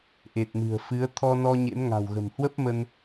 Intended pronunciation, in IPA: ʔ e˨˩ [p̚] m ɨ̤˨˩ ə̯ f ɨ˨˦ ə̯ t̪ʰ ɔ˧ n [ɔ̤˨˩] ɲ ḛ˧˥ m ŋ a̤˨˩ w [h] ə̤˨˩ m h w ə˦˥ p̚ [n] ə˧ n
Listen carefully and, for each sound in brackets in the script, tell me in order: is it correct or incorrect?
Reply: incorrect: t̚, incorrect: ɔ˧, incorrect: ɣ, incorrect: m

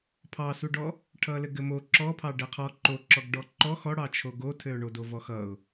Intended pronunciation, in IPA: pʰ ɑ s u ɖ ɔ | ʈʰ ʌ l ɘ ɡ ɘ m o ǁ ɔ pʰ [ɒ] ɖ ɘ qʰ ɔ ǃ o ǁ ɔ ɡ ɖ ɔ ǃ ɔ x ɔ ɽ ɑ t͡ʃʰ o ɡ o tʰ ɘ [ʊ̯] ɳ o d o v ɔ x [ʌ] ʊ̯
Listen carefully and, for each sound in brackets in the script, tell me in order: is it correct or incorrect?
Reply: incorrect: ɑ, correct, correct

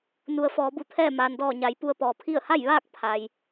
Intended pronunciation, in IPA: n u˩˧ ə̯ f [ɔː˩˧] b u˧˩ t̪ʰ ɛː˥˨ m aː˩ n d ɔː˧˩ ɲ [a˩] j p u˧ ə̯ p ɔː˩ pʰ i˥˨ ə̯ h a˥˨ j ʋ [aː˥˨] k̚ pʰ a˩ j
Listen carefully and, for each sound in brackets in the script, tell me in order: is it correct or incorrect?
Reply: correct, correct, correct

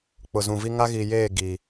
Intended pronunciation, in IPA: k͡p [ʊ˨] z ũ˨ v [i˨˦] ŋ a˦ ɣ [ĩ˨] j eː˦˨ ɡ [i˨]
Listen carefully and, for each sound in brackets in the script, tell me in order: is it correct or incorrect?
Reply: correct, incorrect: i˦, incorrect: i˨, correct

